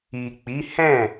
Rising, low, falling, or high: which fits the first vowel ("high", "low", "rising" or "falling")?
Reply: low